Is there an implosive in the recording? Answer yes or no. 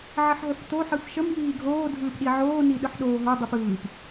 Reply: yes